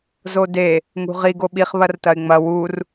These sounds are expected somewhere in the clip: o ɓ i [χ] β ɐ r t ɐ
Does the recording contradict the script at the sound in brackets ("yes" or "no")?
no